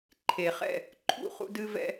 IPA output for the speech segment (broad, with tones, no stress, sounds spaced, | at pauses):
ǃʰ e˨ χ ɛ̰˦˨ | ǃʰ ṵ˦˨ χ ṵ˦ d ɨ˦ v ɛ̰˦